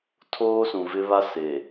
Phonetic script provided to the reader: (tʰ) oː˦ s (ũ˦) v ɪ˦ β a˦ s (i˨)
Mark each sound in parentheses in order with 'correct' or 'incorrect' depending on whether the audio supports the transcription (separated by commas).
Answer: correct, incorrect, incorrect